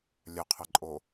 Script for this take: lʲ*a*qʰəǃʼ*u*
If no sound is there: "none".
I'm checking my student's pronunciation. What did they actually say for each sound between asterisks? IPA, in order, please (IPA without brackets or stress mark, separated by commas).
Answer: ə, o